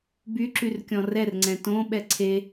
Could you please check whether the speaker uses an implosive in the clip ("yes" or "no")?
yes